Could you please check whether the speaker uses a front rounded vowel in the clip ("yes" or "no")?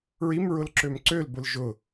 yes